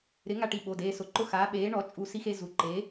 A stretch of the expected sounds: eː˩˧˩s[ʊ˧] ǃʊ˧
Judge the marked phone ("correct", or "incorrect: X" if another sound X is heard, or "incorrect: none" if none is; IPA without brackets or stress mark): incorrect: ʊ˩˥